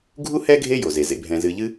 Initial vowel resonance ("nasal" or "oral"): oral